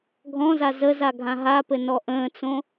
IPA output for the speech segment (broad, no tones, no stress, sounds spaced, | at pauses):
ɡʱ ɔ̃ z a z ə z a ɡʱ ã ɦ a p ɘ n ɔ ʔ ə̃ː t͡s õ